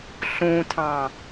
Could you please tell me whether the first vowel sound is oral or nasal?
nasal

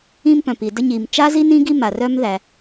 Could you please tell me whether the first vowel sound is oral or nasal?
nasal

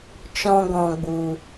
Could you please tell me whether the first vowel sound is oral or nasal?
nasal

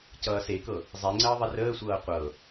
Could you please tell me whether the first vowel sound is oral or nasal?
oral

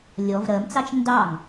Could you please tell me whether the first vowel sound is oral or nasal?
oral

